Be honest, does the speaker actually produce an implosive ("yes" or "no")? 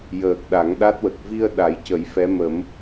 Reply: yes